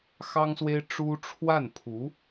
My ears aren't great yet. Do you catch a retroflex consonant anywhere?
yes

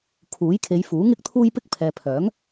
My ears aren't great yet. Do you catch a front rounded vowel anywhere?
yes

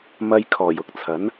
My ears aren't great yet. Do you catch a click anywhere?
no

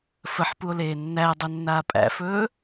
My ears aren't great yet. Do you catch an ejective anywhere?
yes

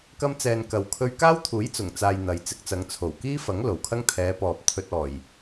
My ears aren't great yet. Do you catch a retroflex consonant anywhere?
no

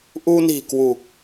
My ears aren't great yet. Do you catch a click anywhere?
no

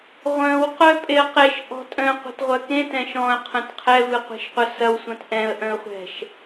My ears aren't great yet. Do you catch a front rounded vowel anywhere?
yes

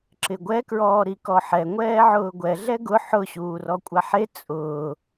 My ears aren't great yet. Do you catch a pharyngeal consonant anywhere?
yes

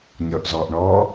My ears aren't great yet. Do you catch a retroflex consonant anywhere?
yes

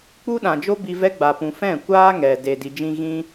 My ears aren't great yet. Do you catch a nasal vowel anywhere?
yes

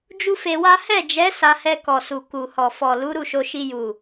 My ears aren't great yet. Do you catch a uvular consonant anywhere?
no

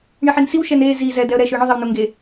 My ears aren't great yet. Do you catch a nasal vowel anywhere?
no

